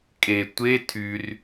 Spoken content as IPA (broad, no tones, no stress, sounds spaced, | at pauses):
kʼ e tʷ e tʰ y r